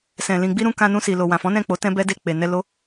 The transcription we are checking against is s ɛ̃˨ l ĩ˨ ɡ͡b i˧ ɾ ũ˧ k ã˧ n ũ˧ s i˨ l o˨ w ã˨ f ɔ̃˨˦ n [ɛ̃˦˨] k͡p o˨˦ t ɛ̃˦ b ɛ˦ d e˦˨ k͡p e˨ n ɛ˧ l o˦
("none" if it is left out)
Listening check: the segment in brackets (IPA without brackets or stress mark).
ɛ̃˦˨